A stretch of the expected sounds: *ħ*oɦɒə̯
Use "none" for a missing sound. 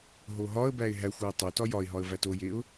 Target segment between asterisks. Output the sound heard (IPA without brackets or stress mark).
ɦ